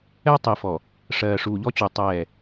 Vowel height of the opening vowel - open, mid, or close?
mid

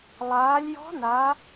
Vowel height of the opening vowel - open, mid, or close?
open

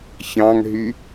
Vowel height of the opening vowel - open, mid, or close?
open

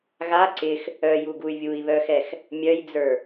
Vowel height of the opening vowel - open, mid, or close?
open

